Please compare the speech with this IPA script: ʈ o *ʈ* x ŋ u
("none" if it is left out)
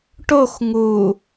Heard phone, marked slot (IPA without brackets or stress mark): none